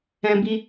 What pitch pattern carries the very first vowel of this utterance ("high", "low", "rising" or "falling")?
high